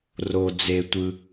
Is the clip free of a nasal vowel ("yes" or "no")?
yes